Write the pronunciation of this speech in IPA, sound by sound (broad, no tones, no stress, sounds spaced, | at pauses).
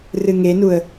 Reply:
r ɨ ŋ e n u ə̯